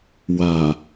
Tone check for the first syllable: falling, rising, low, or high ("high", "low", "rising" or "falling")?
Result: low